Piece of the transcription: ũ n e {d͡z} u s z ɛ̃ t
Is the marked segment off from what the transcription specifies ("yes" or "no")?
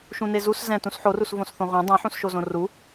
yes